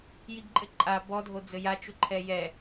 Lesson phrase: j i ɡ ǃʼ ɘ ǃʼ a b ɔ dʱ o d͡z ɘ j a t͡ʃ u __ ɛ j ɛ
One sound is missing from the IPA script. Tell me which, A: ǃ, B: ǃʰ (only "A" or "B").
B